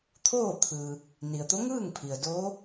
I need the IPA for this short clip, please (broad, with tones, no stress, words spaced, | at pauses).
t̪ʰoː˥˨t̪ʰɯː˩ | ni˩ə̯t̪o˧˥ŋɯː˥˨ŋpʰi˩ə̯ doː˧˥